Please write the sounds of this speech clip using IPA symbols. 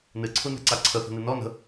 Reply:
nɨǀʰunɛ̤ǀa ǀʰəθə̤nɨ nɔ nə̤

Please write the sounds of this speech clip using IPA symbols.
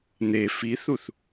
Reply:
n̪e fiθuθ

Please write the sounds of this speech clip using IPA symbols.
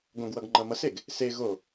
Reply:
ɡõɡwʌɡ ŋ͡ǃʌmʌseɡ | se ɣo

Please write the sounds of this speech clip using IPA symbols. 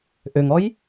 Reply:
ʔøŋɔj

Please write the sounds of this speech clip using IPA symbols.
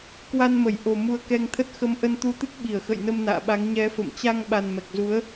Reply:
kwa˧nmə˧˩jʔo˨˩ mu˧ə̯kɛ˧ŋt̪ʰə˦˥t̚ xə˨˦m ʔə˧nt̪u˧t̪ɨ˦˥k̚ɓi˧˩ə̯ xə̰˧˨jnə˧m na̰ː˧˨ɓa˨˦ŋ ɲɛ˨˦fə̰˧˨m t͡ɕa˧ŋɓa˨˩n mɛ˨˩k̚zu˨˦ə̯

